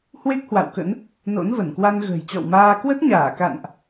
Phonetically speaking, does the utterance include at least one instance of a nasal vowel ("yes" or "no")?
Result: no